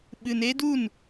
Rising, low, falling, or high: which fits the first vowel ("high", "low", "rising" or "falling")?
low